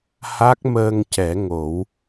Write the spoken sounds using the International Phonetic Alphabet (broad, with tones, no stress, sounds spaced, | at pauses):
h a˦˥ k̚ m əː˧ ŋ c ɛ˨˩˦ ŋ o˨˩˦ w